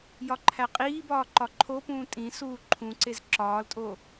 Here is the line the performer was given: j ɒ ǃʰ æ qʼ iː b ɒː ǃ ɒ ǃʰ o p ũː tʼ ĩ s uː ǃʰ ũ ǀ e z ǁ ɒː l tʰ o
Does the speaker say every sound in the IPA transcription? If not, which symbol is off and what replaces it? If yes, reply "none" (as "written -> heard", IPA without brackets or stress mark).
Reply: tʰ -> tʼ